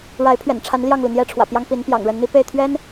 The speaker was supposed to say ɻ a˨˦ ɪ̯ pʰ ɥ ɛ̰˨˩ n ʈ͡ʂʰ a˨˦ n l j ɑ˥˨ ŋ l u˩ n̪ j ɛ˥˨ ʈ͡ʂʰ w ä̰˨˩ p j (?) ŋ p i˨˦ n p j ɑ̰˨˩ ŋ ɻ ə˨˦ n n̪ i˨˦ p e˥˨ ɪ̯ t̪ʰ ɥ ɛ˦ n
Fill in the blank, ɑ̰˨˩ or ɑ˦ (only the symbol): ɑ˦